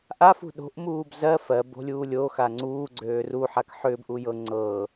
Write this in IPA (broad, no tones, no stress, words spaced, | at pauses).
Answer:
ʔafṳ ɗo̤ʔmuːb zɜ fɜ bo̤lʲuːlʲoxa ŋ͡ǀuːɡ͡ǀøːr uħak ħʏːbʔu jɤ ŋ͡ǀɤ